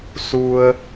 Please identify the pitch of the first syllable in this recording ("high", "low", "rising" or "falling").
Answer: low